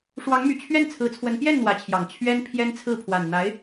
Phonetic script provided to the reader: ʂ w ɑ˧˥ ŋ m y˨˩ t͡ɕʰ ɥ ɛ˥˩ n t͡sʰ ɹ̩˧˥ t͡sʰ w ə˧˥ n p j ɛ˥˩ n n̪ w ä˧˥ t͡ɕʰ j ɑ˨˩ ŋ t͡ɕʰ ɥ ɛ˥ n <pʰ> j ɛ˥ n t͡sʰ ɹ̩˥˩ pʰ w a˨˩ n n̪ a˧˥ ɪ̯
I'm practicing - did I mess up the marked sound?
no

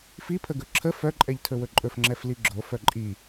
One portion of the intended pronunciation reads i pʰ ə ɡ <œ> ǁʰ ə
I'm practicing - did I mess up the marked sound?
yes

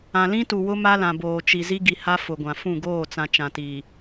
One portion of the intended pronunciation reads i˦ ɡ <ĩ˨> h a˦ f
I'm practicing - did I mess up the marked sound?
yes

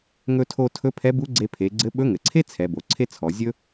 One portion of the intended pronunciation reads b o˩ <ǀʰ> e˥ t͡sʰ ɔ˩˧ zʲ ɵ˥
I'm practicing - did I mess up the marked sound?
no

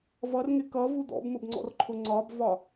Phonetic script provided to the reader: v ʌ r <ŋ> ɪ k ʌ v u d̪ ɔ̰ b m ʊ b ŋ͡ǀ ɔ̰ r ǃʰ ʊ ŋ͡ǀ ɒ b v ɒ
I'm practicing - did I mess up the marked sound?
no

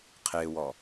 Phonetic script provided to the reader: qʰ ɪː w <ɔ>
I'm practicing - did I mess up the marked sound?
no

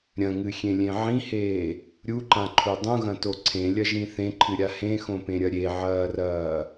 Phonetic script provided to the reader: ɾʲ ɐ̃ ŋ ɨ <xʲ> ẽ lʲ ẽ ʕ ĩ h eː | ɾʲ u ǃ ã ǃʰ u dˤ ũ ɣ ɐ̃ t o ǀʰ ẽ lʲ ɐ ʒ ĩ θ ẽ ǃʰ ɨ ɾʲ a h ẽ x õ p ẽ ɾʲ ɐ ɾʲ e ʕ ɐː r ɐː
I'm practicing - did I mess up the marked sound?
no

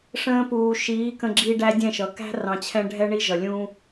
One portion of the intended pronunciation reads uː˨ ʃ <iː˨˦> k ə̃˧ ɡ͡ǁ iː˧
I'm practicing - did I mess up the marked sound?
no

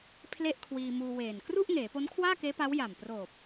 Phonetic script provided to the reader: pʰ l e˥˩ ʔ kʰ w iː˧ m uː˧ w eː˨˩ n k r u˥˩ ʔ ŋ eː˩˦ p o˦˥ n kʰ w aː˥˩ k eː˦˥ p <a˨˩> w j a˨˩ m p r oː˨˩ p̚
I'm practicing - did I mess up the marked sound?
yes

